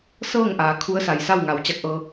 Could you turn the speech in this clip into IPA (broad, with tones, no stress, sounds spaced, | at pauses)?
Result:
s ɤː˥˨ ŋ ʔ aː˩˧ kʰ u˧˥ ə̯ s a˩ j s a˥˨ w ŋ a˩˧ w t͡ɕ a˧ k̚ ʔ ɤː˧